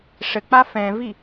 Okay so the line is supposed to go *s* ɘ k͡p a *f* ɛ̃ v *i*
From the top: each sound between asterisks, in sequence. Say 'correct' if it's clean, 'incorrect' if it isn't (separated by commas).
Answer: incorrect, correct, correct